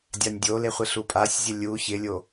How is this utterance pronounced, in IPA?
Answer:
dʲanʲdʲole χʷɪɬupʼasʲzʲə lʲu çɪlʲo

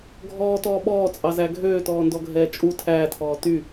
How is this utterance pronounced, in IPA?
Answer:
ɡʱɔːtɔː ɓɔːt͡sʼɑzæ ɡʱøːtɔːndɔɡʱɛː t͡ʃʼu tʰæːtʰɔː ty

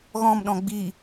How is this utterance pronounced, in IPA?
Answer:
ɣɔ̃m ɗɔ̃ɡ͡bi

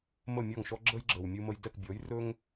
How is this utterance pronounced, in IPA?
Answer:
mə˥˩mʲɔ˥˩ŋʃɔ˥ ɡ͡ǁə˥j ɡ͡ǁə˩wmʲu˧ mə˧j dɛ˥˩kbʲɔ˩˥jrɵ˥ŋ

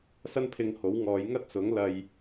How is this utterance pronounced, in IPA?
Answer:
sɐ˥npʰɪ˧ŋho˨˥w ŋɔː˨˧jŋɐ˥t̚sʊ˨˥ŋ lɐ˨j

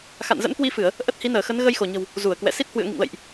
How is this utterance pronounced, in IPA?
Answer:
xa̰˧˨nzə̰˧˥nkwi˧fɨ˧˩˨ə̯ | ʔə˦˥t̚hi˨˦nəː˧˩xə˨˦n ɣə˧jxo˧˩ɲə̤˨˩w | zu˧˩ə̯kwɛ̰˧˨ si˦˥t̚hwɨ̰˧˨ə̯ŋḭ˧˨ŋlə̰˧˨jʔ

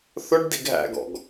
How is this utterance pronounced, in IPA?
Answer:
θʊɖ diɡɦæ̰ɡɔ̰ɡ

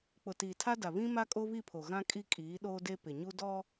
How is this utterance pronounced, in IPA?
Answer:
k͡pʊ˨tiː˨tʰa˦da˨ βĩ˦ ma˦kʼo˦βi˦˨pʰo˨ ɣã˦kʼi˦ kʼiː˨˦ɗoː˦de˦ pɪ˨ɲu˦ dɔ˦

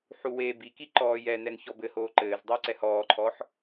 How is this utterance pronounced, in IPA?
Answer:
ħuweːbiki ǃɔːjɛnɛn çɔbɘhoː ǃɘːzdˤɘː ǀɛhɔːǃʰɔħ

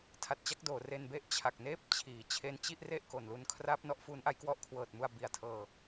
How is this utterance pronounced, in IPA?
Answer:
tʰa˨˩t̚t͡ɕa˦˥k̚doː˩˦ re˧nbe˥˩ʔ t͡ɕʰa˨˩k̚neː˦˥p̚t͡ɕʰiː˩˦ t͡ɕʰe˧nt͡ɕi˥˩ʔ re˥˩ʔko˨˩nlu˧nkʰra˦˥p̚ nɔ˥˩ʔ fuː˦˥nʔa˦˥jkwɔ˦˥ʔ kʰwɤː˨˩t̚mu˧a̯ bi˨˩a̯tʰɤː˧

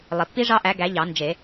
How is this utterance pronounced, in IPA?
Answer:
lˠi˩pːi˦˥ʐɑ˦˥ʔæ˨˦ ɡæ˨˦ ʎɑ˨˩˦nd͡ʒe˨˩˦

